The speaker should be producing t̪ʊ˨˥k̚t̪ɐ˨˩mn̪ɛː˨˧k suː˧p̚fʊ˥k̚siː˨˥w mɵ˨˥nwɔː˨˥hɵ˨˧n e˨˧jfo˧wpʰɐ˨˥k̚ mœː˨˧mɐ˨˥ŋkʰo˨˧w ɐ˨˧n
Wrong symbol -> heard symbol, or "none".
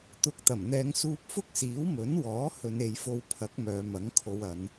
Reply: k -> ŋ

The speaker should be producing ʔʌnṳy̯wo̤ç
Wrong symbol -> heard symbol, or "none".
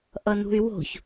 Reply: none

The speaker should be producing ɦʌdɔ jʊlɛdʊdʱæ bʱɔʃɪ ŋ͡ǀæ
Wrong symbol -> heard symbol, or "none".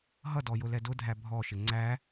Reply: none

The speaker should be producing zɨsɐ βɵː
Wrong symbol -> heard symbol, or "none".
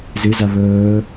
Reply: s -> z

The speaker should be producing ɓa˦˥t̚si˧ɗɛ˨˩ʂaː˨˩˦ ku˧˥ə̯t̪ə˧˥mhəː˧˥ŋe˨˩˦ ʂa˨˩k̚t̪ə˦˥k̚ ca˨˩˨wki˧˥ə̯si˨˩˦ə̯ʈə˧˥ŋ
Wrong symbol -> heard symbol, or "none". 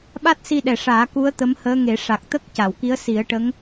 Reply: none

